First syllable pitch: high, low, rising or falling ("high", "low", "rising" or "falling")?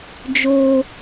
high